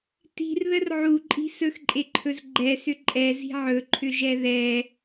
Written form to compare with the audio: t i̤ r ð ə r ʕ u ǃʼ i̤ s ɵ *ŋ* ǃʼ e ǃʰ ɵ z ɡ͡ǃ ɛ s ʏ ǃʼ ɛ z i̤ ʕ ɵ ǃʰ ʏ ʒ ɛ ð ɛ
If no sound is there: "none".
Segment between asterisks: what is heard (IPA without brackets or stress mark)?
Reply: x